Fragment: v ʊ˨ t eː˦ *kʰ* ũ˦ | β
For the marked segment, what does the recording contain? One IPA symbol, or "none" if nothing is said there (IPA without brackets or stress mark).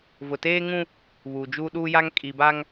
ŋ